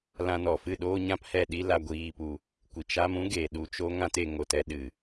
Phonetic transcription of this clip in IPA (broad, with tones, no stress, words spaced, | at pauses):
lã˧nɔ˨fɨ˦˨ ɗoː˦ɲã˦phɛ˦˨ ɗi˦ la˧ɡʷiː˧pu˧ | kʷi˨t͡ʃa˦m ũ˦ɡe˨ ɗu˧t͡ʃo˦ ŋã˦te˧ ŋo˨tɛ˧ɗɨ˨